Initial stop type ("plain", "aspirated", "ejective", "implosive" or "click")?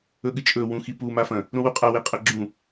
implosive